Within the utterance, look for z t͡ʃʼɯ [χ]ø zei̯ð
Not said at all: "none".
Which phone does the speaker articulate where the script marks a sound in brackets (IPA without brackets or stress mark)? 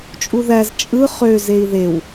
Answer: χ